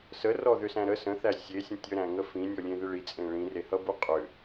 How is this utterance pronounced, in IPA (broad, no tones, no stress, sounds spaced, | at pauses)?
s ə r ɔ ð ʏ s æ̃ ɾ ə s ə̃ θ æ sʲ e sʲ ə̃ tʲ ə ɾ æ̃ ŋ ə f ĩ nʲ ɔ lʲ ẽ ð ɪ ɭ i t͡sʼ ẽ ɭ ĩ r e h ʌ b u qʼ ʏ